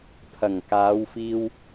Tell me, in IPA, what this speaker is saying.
pʰ ɐ˨˩ ŋ k aː˨˧ w f iː˧ w

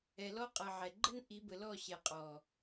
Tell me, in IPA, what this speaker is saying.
ɛ˨ l ɔ˦ qʼ ʌ˨ ʕ ɛ˨ ɡ͡ǃ ə˦ n ʔ i˨˦ b ə˨ l ɔ˦˨ ɕ ɛ˨ qʼ ɔ˨

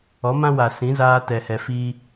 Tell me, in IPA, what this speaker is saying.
ɔ˨˦ m ã˦ w a˨ s ĩ˨˦ z aː˦ t ɛ˧ h ɛ˧ f iː˦

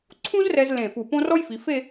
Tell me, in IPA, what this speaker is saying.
ǀʰ ũ˥ z r ɛ˧ z l ẽ˧˩ f u˧˩ p õ˥ r ɔ˥ j f i˩˧ f e˥˧

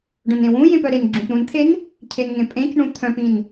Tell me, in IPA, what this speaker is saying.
ɖ œ̃ n ẽ w ũ j ẽ p œ ɾ e n ɡ͡ǁ ũ p ɾ ũ n t̪ʰ e n | cʰ e n ŋ ẽ pʼ ẽ c ɳ ũ t̪ʰ œ̃ p ĩ n

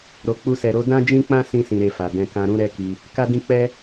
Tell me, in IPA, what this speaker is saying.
ɾ o˨ k͡p u˧ s ɛ˨ ɾ o˨˦ d ã˦ d͡ʒ ĩ˦ k͡p ã˦ s ĩ˧ s ĩ˧ ɾ e˧ f a˨ d ɛ̃˧ k ã˧ ɾ ũ˦ ɾ ɛ˦ k i˧ | k a˦ d ĩ˦ k͡p ɛ˦

